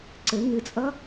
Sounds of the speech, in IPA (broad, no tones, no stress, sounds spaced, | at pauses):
ǀ ɘ ŋ ɨ t͡sʼ ʌ